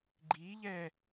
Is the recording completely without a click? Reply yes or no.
no